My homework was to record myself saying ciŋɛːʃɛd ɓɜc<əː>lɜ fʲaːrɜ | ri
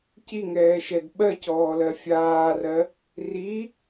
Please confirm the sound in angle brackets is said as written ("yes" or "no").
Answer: no